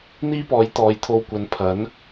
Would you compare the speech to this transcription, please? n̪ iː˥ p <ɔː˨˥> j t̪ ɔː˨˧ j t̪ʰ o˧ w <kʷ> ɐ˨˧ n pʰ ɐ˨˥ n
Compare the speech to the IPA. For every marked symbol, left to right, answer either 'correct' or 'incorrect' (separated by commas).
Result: correct, correct